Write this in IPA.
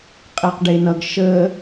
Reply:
qʼeqɖenʌɡ ʃə

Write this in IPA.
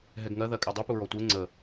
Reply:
ɦɛɡŋɜ ðɜkʼɛdˤu puɹɔtʷe ŋ͡ǀə

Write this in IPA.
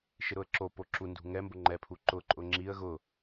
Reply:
ʃɪɾʊə̯ǁopo ǁundṳ ŋɛmbʊ ŋ͡ǃɛpʰu ǃʊǃʼʊ ŋ͡ǁiə̯ ɣʊ

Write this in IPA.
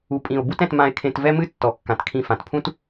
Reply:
u˨pʼĩ˨o̯ bu˦tɛ̃˧t mã˧e̯kʰẽ˧tvɛ˦mɨ˦ tːɔ˨kːã˨tkʰĩ˧ fã˨tpʰũ˦t

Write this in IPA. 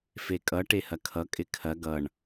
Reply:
fekʼʌ ʈehɐkʰʌ kʼɪkʰɐ ɡʌɳ

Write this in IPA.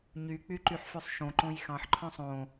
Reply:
ɲyk͡pyǃyħfʉsˤ ʃõǃõj xɑ̃ħǃʰœ̃ sˤõ

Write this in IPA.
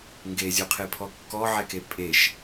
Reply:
ŋɡezʲuqʰepʰɔ kːɔʕɛke pʼeʃ

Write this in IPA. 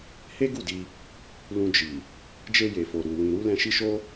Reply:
he˦ɡu˦˨di˧ | lũ˧d͡ʒi˨ | d͡ʒe˧je˨fo˨ ɾu˨wĩ˨ ɾu˧ lɛ̃˧ʃi˦ʃo˦

